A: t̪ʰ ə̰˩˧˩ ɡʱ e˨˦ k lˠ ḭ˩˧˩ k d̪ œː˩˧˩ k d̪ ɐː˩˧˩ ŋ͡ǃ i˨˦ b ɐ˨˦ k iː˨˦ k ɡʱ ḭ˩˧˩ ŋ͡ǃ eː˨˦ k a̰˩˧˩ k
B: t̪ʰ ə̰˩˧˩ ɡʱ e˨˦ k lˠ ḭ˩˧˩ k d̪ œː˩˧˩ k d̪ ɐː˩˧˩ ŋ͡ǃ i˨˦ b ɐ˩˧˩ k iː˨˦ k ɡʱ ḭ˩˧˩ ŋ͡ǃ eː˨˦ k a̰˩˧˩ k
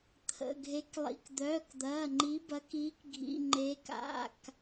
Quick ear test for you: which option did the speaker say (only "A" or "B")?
A